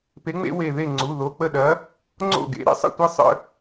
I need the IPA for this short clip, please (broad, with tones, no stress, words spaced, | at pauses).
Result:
pe˨˥ŋ͡mḛ˦we˧˩ðe˥˩ ŋ͡ǀu˩˧˩ðo˩˧˩k͡pə˥˩ɗɐ˨˥ | ŋ͡ǀo̰˥˩ɡḛ˨˥ ɾḛ˦sˤə̰˥˩tʷe˦ sˤə̰˦